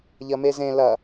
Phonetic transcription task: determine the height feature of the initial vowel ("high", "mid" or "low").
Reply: low